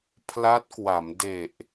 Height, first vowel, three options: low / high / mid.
low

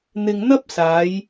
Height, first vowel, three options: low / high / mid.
high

